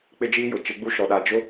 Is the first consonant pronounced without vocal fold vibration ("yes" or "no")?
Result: yes